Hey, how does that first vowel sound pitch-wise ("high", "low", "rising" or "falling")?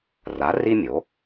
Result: rising